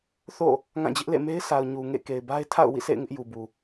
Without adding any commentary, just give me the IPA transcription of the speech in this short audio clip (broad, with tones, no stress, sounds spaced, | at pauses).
θ o̰˦˨ | ŋ ã˦˨ d͡ʑ ɪ˦ ʔ l ḛ˦˨ m e˦ ɪ̯ sʰ a˨ ʊ̯ ɲ u˨ ŋ ḛ˦˨ k e˨ ɪ̯ b a˦ ɪ̯ tʰ a̰˦˨ ʊ̯ w ḭ˦˨ sʰ ḛ˦˨ ɪ̯ ŋ ɪ˦ ʔ j u˨ b u˨